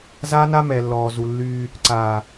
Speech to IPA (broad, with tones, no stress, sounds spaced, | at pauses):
z aː˦ n a˦ m ɛ˨ lː ɔː˨ z u˨ lː yː˦ | ǀ aː˨